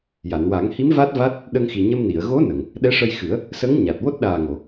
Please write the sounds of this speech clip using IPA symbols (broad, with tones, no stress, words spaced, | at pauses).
ja˨˩˨nwa˨˩˦ŋhi˧˥m va˦˥t̚ va˦˥t̚ | ɗə˧ŋxi˨˩ ɲə˧mni˨˩˨ə̯ ɣo˧˥ nə˨˩˨ŋ | ɗɛ˧˥ʂə˧jxɨ˨˩˦ə̯ | sə˧˥ŋɲa˨˩t̚ wo˦˥t̚ɗaː˨˩ŋo˨˩˨